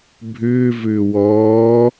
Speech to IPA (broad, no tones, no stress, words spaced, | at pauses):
bʱʏːvʏː wɔː